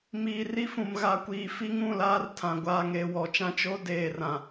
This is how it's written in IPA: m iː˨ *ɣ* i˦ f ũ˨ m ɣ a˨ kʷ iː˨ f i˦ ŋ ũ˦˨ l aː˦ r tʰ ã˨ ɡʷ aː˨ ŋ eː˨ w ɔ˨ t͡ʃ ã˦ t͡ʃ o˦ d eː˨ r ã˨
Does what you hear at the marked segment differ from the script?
yes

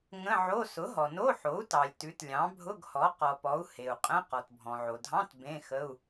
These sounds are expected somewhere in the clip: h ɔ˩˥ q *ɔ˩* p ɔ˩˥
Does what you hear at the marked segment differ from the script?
no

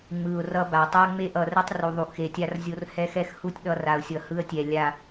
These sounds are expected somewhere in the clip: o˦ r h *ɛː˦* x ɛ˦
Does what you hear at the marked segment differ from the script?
yes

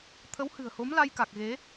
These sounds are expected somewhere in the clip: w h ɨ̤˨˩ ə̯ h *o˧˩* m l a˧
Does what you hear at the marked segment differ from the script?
yes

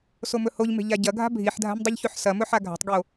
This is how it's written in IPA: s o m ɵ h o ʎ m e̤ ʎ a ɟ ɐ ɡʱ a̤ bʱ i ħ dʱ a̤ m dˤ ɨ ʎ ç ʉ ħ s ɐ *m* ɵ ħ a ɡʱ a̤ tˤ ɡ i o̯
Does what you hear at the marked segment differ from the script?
no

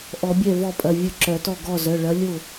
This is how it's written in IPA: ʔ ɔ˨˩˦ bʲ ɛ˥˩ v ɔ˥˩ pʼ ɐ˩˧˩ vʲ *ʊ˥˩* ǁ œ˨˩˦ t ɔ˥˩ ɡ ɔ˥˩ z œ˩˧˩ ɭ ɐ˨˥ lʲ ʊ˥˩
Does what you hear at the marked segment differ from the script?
no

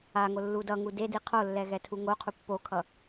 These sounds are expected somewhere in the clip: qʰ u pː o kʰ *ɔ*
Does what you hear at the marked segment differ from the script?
yes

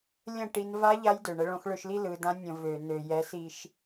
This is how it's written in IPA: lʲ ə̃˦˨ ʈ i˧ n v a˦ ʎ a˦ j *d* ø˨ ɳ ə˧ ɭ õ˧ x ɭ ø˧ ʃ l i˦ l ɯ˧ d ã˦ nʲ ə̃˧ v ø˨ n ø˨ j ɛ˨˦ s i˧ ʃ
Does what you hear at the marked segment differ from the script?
no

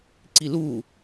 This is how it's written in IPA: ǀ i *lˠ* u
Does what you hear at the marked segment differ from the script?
yes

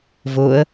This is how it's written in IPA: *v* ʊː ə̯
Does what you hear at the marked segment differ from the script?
no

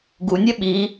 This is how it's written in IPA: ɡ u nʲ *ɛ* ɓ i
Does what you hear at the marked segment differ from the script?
no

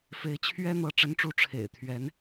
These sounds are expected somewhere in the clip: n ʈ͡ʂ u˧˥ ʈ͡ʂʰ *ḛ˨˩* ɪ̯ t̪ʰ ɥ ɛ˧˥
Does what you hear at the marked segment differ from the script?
no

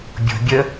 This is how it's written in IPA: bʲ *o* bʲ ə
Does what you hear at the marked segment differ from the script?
yes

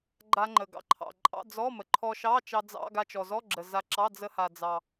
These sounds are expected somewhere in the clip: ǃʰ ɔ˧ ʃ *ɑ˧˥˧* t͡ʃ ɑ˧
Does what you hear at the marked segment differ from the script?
no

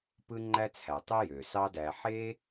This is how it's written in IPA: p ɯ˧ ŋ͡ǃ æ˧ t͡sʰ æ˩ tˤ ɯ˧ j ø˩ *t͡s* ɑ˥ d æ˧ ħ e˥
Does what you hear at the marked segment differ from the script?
yes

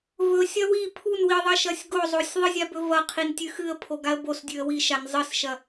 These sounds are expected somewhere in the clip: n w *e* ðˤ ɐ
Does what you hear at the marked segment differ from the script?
yes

